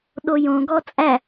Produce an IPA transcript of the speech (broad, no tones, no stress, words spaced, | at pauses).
ɗojõɡɔ t͡sʼæ